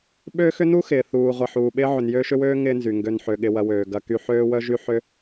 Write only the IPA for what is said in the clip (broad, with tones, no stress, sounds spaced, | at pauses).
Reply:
ɓ ø˥ x ʏ˥ n u˥ x ɪː˩ θ uː˩ ʁʷ ɐ˩ ħ uː˩ ɓ ɪː˥ ʕ ʏ˩ n j øː˦ ʃ ʏ˦ w øː˥ ŋ ɪː˦ n z y˩ ŋ ɡ ø˨ n ħ ø˩ ɠ ɪ˨ w ɐ˩ w øː˩ ɡ ɐ˨ k y˨ ħ øː˥ w œ˥ ʒ y˥ ħ ʏ˦